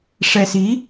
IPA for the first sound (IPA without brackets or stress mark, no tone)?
ʂ